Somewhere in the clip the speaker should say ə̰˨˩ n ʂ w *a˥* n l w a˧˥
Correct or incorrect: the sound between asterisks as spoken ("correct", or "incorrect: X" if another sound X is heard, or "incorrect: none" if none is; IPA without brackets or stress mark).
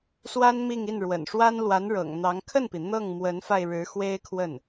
correct